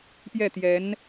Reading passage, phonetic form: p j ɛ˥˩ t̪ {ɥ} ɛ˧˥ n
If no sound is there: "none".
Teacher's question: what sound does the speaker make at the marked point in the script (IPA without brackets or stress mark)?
j